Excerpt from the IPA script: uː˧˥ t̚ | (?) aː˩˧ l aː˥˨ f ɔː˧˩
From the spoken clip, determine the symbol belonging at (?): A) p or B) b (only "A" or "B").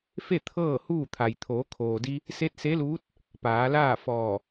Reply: A